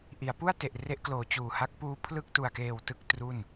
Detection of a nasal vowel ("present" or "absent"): absent